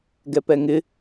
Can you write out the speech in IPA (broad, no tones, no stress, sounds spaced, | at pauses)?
ɡ ɛ p ɛ ŋ ɪ